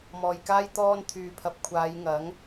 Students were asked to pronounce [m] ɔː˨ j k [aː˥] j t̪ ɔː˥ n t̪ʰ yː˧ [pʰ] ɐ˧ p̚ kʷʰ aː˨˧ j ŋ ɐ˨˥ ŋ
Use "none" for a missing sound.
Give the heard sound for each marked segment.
m, aː˥, pʰ

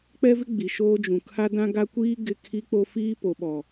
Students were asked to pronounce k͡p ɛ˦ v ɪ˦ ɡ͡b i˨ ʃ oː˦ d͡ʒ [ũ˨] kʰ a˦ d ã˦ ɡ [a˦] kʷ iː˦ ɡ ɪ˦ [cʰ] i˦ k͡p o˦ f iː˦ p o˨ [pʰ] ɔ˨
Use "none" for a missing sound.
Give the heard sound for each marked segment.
ũ˨, a˦, kʰ, ɓ

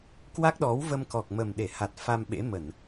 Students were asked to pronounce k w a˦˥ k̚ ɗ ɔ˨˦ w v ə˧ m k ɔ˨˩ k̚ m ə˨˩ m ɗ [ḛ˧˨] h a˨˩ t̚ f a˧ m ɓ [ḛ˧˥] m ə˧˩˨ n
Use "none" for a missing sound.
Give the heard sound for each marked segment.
e˧˩, ḛ˧˥

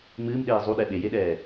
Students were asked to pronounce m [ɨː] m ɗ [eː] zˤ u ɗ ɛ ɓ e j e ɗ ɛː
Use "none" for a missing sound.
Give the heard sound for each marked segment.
ɨː, eː

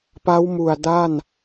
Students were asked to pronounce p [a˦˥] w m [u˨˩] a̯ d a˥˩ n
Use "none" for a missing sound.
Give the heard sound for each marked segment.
a˦˥, u˨˩

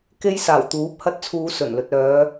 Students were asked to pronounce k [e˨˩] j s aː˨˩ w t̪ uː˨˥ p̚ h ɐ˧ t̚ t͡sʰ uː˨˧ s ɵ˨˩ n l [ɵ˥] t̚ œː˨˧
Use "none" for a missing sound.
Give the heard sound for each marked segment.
e˧, ɵ˨

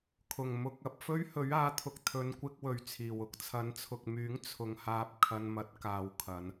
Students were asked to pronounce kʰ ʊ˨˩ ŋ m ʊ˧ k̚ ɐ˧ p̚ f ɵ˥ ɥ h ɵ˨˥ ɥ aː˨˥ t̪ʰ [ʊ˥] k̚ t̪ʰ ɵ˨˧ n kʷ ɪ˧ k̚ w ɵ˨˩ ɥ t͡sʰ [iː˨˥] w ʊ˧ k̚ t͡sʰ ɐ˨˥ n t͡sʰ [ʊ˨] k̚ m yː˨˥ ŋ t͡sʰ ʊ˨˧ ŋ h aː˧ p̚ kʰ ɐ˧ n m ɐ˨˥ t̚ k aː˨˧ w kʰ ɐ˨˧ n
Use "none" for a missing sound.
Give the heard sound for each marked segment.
ʊ˨, iː˨˩, ʊ˨

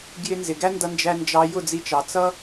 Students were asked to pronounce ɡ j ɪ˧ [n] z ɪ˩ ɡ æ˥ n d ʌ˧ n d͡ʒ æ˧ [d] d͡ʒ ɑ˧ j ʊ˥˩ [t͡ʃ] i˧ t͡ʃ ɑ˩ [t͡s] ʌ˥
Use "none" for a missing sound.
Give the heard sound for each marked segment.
n, n, d͡z, t͡s

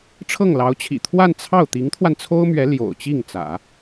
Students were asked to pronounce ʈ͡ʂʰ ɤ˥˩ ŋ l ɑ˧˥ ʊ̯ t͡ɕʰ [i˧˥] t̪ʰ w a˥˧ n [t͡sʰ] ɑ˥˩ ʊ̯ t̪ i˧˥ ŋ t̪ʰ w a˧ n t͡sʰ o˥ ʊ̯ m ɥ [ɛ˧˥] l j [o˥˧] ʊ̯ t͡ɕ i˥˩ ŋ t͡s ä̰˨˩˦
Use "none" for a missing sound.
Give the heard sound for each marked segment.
ḭ˨˩, t͡sʰ, ɛ˧˥, o̰˨˩

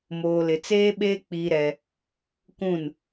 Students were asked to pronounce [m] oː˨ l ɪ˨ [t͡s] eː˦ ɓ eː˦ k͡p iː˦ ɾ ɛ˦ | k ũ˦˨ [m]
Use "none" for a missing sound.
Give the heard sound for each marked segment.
m, t͡s, n

